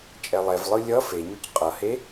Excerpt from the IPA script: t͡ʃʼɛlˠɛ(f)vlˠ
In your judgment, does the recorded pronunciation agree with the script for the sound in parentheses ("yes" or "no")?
no